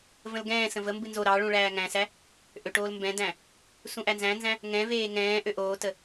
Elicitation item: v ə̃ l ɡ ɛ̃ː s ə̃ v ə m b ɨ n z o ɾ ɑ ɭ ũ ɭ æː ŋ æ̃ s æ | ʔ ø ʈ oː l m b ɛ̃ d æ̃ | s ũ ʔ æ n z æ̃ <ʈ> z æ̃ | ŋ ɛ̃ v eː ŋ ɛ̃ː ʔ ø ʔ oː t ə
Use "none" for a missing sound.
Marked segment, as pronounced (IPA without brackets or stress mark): n